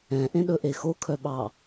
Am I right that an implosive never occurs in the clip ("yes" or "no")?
no